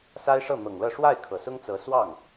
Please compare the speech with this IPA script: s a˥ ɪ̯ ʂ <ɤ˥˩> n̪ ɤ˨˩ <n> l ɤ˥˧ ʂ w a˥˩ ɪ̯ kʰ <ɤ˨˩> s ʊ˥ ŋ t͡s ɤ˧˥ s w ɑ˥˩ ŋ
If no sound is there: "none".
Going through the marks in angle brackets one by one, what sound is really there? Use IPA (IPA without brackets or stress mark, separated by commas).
ɤ˥˩, ŋ, ɤ˨˩